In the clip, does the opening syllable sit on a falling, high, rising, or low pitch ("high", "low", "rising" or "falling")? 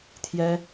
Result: high